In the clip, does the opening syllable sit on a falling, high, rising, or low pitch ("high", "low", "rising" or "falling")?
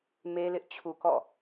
high